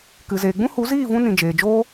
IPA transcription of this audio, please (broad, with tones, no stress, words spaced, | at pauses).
kɨ˨zeː˨ɡ͡bũ˦ hu˨˦ziː˦˨vũ˧ nĩ˨ d͡ʒeː˨d͡ʒoː˦